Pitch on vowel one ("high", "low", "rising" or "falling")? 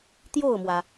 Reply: falling